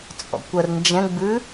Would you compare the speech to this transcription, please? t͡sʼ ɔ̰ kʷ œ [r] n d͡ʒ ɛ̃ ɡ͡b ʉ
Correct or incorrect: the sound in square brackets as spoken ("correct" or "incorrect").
correct